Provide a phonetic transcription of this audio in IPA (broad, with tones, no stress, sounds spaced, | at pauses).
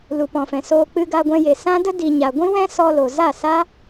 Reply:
l u˨ p ɔ̃˨ f ɛ̃˨ s oː˧ k͡p ɨ˧ ɡ a˧ ɡʷ ɛ̃˧ j e˨ s ã˦ d ə˦ d i˨ ɲ a˨ ɡʷ ĩ˦ w ɛ̃˦ s ɔ˧ l o˨ z a˦˨ s a˦